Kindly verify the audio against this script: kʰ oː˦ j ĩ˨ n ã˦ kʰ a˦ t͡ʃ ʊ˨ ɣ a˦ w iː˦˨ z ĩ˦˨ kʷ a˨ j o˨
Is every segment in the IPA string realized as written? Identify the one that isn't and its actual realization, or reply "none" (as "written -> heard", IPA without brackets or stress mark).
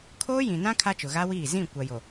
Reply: none